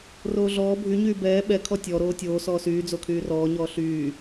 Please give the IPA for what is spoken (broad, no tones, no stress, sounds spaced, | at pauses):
r oː ɮ ɔː bʱ y ɲ yː b ɛː ɓ ɛ kʰ ɔ tʲ ɔ ɾ oː tʲ oː s ɔː s yː d͡z o kʰ yː r ɔː ɲ ɔː ɬ yː